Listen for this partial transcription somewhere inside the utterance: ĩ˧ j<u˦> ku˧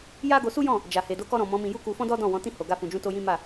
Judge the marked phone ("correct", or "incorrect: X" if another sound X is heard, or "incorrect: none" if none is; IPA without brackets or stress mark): correct